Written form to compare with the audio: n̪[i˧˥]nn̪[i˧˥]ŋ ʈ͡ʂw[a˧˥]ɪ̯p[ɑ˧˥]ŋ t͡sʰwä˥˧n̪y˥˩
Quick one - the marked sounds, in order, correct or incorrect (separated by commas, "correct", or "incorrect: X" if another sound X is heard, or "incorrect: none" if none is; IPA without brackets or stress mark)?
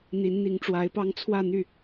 correct, correct, correct, incorrect: ɑ˥